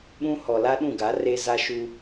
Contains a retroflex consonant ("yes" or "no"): no